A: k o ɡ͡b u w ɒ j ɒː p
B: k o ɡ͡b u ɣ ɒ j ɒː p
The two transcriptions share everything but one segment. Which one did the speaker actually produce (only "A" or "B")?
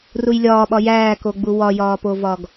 A